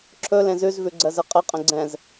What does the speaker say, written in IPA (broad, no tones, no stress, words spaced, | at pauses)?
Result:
ǁʰɵ lẽzʉzvʉ ɡ͡ǀɜzɘqʼɘqʼə̃ ɡ͡ǀɛ̃z